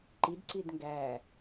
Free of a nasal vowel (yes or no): yes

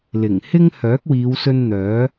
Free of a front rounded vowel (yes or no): no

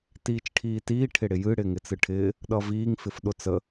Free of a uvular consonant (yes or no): yes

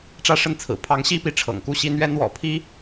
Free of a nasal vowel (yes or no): yes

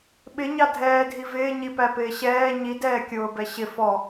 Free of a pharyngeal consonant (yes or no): yes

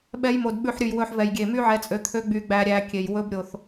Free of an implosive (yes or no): no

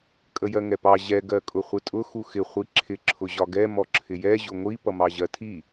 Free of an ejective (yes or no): no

